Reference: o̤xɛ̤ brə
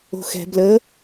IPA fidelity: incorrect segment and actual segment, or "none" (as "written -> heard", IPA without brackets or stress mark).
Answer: r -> l